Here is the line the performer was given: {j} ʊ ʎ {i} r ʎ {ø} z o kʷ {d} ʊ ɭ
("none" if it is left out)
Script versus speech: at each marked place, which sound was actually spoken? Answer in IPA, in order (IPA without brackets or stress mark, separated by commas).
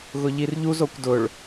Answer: ɣ, i, u, d